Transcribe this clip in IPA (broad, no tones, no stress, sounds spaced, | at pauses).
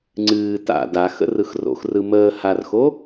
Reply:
ŋ͡ǀ ɨː t a̰ d a x ə̰ r ɯ x r o̰ x r ɯ m əː h a r x o